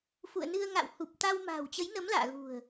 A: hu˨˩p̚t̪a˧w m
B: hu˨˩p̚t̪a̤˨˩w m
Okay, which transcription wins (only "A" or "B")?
A